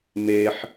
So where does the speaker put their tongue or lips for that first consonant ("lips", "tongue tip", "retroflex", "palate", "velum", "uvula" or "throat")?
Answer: lips